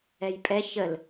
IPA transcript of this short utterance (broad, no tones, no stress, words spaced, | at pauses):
ɛjpʼɛ çəl